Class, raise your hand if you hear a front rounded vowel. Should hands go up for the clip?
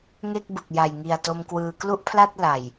no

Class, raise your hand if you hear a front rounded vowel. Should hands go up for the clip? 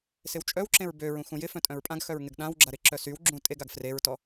yes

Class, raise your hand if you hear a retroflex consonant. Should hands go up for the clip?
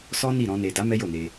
no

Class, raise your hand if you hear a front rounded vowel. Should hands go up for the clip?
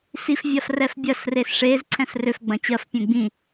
yes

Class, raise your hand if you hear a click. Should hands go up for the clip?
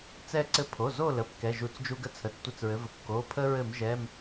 yes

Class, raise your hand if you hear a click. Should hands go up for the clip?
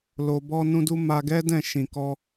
no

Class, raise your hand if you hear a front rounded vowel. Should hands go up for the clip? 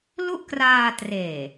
no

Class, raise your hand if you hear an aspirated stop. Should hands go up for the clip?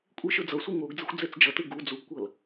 no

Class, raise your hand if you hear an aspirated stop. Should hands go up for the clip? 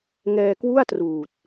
no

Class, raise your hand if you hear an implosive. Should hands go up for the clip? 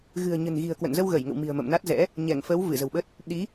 yes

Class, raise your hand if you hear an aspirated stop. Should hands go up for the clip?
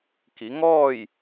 no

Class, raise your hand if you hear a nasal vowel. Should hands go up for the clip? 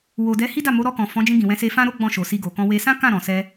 yes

